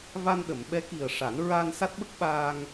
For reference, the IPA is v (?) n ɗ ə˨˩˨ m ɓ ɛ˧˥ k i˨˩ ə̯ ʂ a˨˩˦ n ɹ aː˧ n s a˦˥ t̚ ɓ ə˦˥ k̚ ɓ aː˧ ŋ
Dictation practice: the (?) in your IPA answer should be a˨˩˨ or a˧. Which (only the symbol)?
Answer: a˧